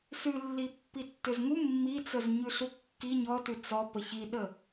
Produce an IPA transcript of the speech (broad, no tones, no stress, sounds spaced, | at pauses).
s ʉ lː i pː i tː ʏ z ŋ u mː i t͡s ə z ɲ ʉ ɬ u kː i ɲ ɔ t ʉ t͡s ɔ p ə ç i ɗ ə